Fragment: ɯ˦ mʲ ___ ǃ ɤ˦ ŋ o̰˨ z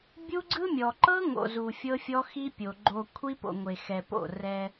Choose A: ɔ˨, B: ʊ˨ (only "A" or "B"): A